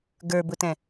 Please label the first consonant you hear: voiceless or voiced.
voiced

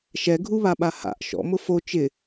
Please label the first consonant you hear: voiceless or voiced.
voiceless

